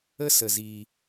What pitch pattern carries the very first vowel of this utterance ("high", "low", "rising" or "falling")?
high